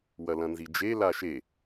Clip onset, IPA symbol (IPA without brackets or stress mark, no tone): w